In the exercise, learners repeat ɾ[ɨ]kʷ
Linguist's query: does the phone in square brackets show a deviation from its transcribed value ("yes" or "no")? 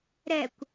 yes